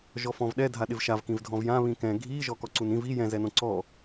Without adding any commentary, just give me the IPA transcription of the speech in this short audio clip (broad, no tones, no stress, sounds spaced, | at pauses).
ʒ ɔ f ɔ̃ v ɗ ɛ dʱ a ɗ ɪ v ʃ a v k ĩ v dʱ ɔ̃ v j ã β ĩ k ɛ̃ ɡʱ i ʒ ɔ k ɔ ǀ u n ĩ v i j ɛ̃ z ɛ n õ ǀ ɔ